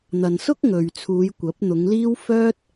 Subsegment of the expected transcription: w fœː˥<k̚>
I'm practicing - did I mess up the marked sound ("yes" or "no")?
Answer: yes